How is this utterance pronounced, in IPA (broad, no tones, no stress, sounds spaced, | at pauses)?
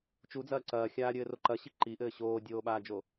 t͡ʃ u d͡z ɐː ǀ ɐː xʲ aː ɾʲ ɘː r o ǃ ɐ ɕ i ǃ i ʔ ɘː ɕ oː dʲ oː ɓ aː d͡ʒ o